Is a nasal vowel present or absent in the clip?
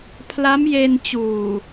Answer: absent